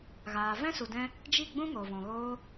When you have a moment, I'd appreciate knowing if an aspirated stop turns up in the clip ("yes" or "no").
no